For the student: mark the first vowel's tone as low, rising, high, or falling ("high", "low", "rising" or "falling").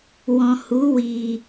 low